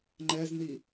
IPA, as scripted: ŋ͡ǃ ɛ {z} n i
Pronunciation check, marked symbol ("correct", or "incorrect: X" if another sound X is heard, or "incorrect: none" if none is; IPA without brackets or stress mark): correct